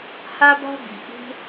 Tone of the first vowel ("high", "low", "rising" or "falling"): high